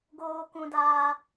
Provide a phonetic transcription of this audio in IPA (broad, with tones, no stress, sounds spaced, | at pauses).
ɡ oː˧ k ũ˧ d aː˧